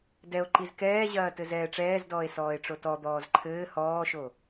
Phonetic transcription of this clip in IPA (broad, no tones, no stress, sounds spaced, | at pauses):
d ɛ o̯ ǃ i z k ɛː ʑ ɐː t ɘ z ɛː ʈ͡ʂ ɛː z d ɔː e̯ s ɔː e̯ ʈ͡ʂ o t ɔ d̪ ɔː z ǃʰ ɘː h ɔː ʃ o